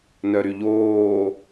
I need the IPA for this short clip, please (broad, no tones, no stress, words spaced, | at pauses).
nœɾyʎoː